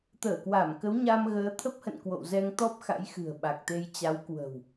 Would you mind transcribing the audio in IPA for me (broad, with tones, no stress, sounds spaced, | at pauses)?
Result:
t̪ əː˧˩ k w a˧˩ m k ə˨˦ w ɲ a˧ m ɣ əː˨˦ t̪ʰ ə˦˥ p̚ h ə̰˧˨ n k w o̰˧˨ w z ɛ˧ ŋ t̪ ɔ˦˥ p̚ x a̰˧˥ j x ɨ̤˨˩ ə̯ ɓ a˨˩ k̚ t̪ e˧ j t͡ɕ a˨˦ w k w ə̤˨˩ w